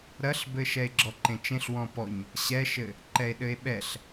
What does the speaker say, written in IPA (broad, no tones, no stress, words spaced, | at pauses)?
ɾɐɬbɘ ʃɛe̯ɡ͡ǁɔǃẽt͡ʃẽɬ wɔ̃pɔɲ | ɕɛʃɘ | ǃɛe̯ɗɘe̯ɓɛɬ